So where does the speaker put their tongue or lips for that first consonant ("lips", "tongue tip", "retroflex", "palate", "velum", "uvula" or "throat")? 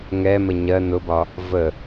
velum